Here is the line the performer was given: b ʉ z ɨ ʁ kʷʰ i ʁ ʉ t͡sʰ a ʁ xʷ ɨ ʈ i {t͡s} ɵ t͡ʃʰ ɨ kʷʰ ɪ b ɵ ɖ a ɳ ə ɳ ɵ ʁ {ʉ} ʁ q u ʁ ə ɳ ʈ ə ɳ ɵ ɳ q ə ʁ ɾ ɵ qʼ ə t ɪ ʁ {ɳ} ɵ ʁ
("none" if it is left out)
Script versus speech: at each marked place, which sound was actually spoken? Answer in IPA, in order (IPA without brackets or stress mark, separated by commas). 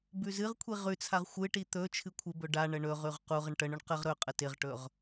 t̪, ʉ, ʈ